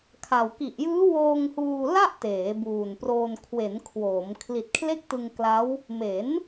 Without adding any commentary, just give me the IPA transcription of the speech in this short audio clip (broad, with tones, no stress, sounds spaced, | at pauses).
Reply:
kʰ a˨˩ w k i˨˩ ʔ j ɯː˦˥ w oː˧ ŋ h uː˧ l a˥˩ ʔ t eː˩˦ b uː˨˩ n p r oː˧ n kʰ w e˩˦ n kʰ w oː˩˦ m kʰ l i˨˩ t̚ kʰ l e˥˩ k̚ t ɯ˧ ŋ k l a˦˥ w | m e˩˦ n